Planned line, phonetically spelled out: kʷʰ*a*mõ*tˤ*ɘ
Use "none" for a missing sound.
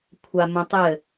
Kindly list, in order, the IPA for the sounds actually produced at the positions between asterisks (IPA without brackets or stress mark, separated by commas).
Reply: a, tˤ